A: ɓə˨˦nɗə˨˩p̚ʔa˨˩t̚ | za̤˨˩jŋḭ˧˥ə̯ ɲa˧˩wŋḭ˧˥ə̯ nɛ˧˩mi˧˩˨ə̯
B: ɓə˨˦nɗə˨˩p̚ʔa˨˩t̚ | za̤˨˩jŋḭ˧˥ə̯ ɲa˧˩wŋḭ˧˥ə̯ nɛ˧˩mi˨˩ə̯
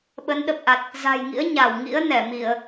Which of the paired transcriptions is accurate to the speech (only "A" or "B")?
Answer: A